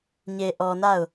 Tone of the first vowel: low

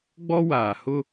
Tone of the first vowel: high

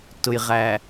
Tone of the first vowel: low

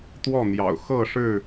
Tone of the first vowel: falling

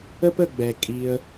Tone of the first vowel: high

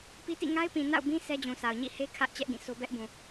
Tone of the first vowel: high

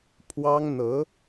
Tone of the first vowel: high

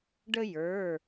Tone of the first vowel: high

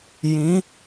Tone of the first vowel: rising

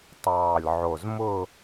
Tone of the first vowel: low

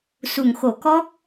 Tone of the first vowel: low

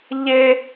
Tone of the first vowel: high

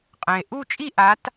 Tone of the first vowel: low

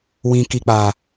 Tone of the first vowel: low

